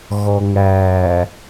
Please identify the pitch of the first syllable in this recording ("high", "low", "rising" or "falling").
low